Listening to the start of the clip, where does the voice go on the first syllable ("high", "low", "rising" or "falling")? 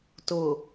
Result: low